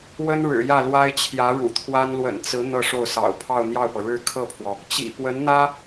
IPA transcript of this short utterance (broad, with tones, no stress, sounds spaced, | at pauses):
w ə˥ n ɻ ɻ̩˨˩ j ä˥˩ l w a˥ ɪ̯ t͡ɕʰ j ä˧˥ ɻ ṵ˨˩ t̪ʰ w a˥ n l w ə̰˨˩ n t͡s ɹ̩˧˥ n̪ ɤ˥˧ ʂ o˥˩ ʊ̯ s ɑ̰˨˩ ʊ̯ pʰ ɑ˥˧ ʊ̯ n̪ j ɑ˥˩ ʊ̯ p ɤ˩ ɻ ɻ̩˥ kʰ ɤ˥˩ pʰ w ɔ˩ | t͡ɕ ḭ˨˩ p w ə˧˥ n n̪ ä˥